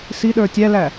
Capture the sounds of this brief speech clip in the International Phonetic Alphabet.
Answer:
s i ɗ ə˞ tʲ æ l æ

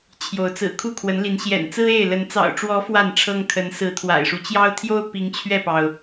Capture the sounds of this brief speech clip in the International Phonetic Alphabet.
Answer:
t͡ɕʰ j o˨˦ ʊ̯ t͡s ɹ̩˨˩ kʰ u˥˨ kʰ w ə˨˦ n l i˨˦ n ɕ j ɛ̰˨˩ n t͡s ɹ̩˦ e˥˨ ɪ̯ l ə˨˦ n t͡s ɑ̰˨˩ ʊ̯ ʈ͡ʂ w ɔ˨˦ f w a˥˨ n ʈ͡ʂʰ ɤ˦ ŋ kʰ ə˨˦ n s ɹ̩˨˦ t̪ʰ w a̰˨˩ ɪ̯ ʂ u˦ t͡ɕ j ɑ˦ ʊ̯ t̪ʰ j o˦ ʊ̯ p i˨˦ ŋ t͡ɕʰ ɥ ɛ˥˨ p ɑ˩ ʊ̯

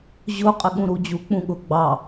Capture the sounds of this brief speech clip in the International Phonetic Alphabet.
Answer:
ʑ ʊ qʼ ɪ ɠ ũ ɾ u d͡ʑ u k͡p ũ ɠ ʊ ɡ͡b ɑ

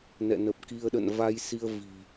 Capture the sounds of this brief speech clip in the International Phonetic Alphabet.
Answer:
n ɛ̰˧˨ n ə˨˩ p̚ k i˧ ə̯ ɗ ə̰˧˨ n v a˧ j s i˧ ə̯ v i̤˨˩

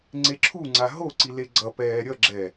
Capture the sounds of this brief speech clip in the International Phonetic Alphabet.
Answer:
ŋ͡ǀ e ǁʰ u ŋ͡ǀ a ɦ o ǀ i l e ɡ͡ǀ ʌ p ɛː ɾʲ ʌ ɡ͡ǁ ɛ

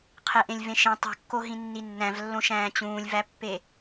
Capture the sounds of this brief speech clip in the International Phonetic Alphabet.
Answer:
qʰ e ʔ ẽ lʲ v ẽ ʃ ĩ tˤ ṳ kː o ɦ ĩ nː i nː æ̃ v lː õ ʃ æ̃ː t͡ɕ ũː lʲ v æ pː e

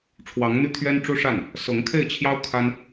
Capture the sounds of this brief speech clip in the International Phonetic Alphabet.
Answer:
ʈ͡ʂʰ w ɑ˧˥ ŋ n̪ y˥˩ t̪ʰ ɥ ɛ˥ n ʈ͡ʂ u˥ ʂ a˥˩ n | s ɤ˧˥ ŋ kʰ e˥˩ ɪ̯ t͡ɕʰ j ɑ˥ ʊ̯ kʰ a˥ n

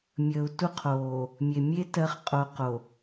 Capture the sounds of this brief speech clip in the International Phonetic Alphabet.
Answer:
mʲ əː˨ u̯ t u˦ qʰ oː˨ | mʲ e˨ mʲ e˦ t ɜ˨˦ χ qʼ o˨ q o˨

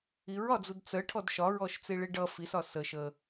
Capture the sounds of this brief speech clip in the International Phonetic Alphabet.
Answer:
i ɹ ɒ d͡z u d t͡s ə ʈʰ ɔ d ʃ ɒ ɹ ɔ ʃ t͡s i ɭ i ɖ ʌ f i s ɒ s ə ʃ ə

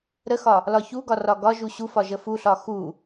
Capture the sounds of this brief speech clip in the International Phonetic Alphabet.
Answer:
ɾ ə x ɒ | l ɒ ç u ɡ ɒ r ɒ ɡ ɒ ʒ u ɕ u f ɒ ʒ ə f u ɬ ɒ x u

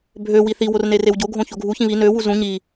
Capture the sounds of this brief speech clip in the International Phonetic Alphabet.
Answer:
bʱ ø w i θ i w o r n e r e w ɟ o ɡʱ õ ç o ɡʱ u ç ĩ β i n ø w u z ũ ɲ i

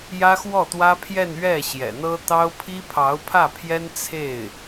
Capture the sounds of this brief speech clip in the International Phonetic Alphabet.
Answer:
j ä˥ x w ɔ˥˩ t̪ w ä˥ pʰ j ɛ˥˧ n ɥ ɛ˥˩ ɕ j ɛ̰˨˩ n̪ ɤ˥ t̪ ɑ˥ ʊ̯ pʰ i˥ pʰ ɑ˧˥ ʊ̯ pʰ ä˥˩ pʰ j ɛ˥ n t͡sʰ e˥˩ ɪ̯

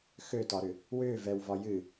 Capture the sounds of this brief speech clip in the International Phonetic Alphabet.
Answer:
x ø t ɒ ɾ ʏ | w ʏː v ɛ w v ɒ j ɨ

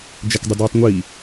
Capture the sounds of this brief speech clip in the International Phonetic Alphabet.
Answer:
d͡ʒ ɛ k dˤ ɨ d ɨː tˤ ŋʷ i

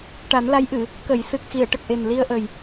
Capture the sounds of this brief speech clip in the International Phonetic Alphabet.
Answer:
ʈ a˨˩˦ n l a˧˥ j ʔ ɨ˨˩˨ | k ə˨˩˨ j s ɨ˨˩ k̚ x i˨˩˨ ə̯ ʈ ə˨˩ k̚ ʔ e˨˩ n l i˧ ə̯ ʔ ə˨˩ j

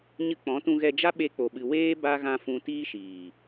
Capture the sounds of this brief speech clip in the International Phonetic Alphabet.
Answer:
ɲ ɨ˧ k͡p ɔ̃˨˦ t ũ˧ ɣ ɛ˧ d͡ʒ a˦ ɓ e˧ k͡p o˨ ɓ ɨ˨ w eː˦ b a˦ ɣ ã˧ f ũ˧ t iː˦ ʃ iː˨

